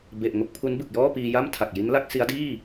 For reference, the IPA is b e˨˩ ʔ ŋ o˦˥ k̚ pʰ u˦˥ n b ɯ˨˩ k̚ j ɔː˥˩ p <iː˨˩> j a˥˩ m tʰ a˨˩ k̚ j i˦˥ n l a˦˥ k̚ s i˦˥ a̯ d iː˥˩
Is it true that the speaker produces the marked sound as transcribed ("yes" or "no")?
no